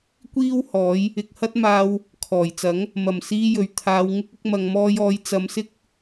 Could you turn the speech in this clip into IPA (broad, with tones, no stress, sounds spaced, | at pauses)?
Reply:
kʷ iː˥ w h ɔː˨˥ j | ɪ˨ k̚ h ɐ˥ t̚ m aː˧ w | kʰ ɔː˨˩ j t͡s ɐ˨˥ ŋ | m ɐ˨˩ m s iː˧ j ɵ˨ ɥ t̪ʰ aː˨˧ w ŋ ɪ˥ k̚ ɪ˧ k̚ m ɐ˨ ŋ m ɔː˧ j ɔː˨˧ j t͡s ɐ˨˧ m s ɪ˥ k̚